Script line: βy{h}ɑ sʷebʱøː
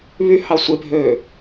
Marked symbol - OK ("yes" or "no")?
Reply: yes